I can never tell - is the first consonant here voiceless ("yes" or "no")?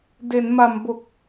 no